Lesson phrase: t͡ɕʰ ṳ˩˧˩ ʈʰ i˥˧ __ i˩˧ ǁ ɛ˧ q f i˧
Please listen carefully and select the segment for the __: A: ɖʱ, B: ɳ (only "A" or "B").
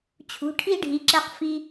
A